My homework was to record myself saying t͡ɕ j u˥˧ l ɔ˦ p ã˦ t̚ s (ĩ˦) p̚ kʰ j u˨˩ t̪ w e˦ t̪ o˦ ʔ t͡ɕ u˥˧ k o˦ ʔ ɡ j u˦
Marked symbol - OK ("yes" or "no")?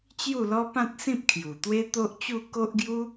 yes